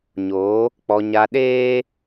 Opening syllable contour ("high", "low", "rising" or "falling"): rising